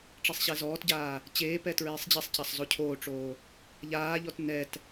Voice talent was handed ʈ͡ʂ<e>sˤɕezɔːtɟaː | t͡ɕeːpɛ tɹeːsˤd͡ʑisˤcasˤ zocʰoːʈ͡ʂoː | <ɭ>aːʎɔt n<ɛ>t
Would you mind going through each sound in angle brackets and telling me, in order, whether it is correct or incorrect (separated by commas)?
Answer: correct, incorrect, correct